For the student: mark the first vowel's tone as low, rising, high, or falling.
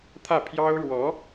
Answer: falling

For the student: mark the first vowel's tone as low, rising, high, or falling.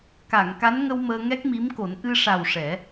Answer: low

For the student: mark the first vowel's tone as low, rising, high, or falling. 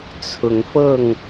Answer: rising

